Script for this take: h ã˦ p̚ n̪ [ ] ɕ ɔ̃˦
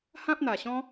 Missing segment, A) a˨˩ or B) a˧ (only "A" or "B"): A